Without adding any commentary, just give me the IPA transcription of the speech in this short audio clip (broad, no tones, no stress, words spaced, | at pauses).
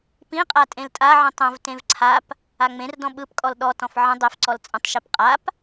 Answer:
pĩqʼa tʼẽltʼaʕĩ tˤə̃vtẽv ǀʰap | aŋ͡mẽrdɔ̃ ɓɯpkʼɔl ɗɔtɔ̃f ʕə̃ dˤefǀɔl t͡sʼə̃tˤʃip qʼap